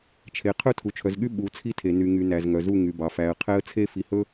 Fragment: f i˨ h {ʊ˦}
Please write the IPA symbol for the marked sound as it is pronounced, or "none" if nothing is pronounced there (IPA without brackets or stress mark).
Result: ɵ˦